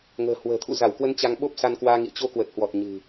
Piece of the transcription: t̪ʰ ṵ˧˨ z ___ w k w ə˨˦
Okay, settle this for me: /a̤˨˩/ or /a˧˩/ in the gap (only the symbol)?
a˧˩